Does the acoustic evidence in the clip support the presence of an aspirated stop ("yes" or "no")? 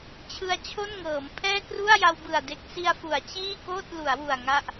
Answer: yes